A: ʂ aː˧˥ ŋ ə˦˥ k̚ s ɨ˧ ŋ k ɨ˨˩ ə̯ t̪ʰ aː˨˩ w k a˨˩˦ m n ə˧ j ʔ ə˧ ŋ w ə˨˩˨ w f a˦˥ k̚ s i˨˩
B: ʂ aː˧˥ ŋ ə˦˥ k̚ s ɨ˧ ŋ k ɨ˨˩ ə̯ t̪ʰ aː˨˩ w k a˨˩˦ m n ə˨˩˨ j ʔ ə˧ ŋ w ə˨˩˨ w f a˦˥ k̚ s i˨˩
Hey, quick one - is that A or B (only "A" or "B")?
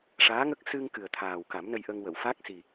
A